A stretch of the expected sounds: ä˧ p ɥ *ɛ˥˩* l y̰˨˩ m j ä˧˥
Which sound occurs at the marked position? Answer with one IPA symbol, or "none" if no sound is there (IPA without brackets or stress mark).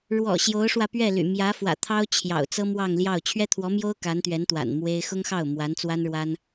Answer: ɛ˥˩